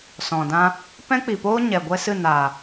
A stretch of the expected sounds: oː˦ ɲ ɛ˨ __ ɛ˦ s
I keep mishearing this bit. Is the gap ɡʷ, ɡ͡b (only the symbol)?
ɡʷ